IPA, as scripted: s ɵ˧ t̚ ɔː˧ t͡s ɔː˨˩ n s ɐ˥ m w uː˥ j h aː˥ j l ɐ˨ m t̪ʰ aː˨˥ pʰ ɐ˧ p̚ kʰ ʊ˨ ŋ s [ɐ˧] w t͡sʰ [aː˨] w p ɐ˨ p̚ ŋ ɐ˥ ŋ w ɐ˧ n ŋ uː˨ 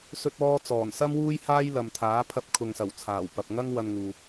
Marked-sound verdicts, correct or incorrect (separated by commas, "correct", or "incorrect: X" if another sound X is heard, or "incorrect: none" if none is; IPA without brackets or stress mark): incorrect: ɐ˨˩, incorrect: aː˨˩